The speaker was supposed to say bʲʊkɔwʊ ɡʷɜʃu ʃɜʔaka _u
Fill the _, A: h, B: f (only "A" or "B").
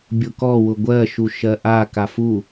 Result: B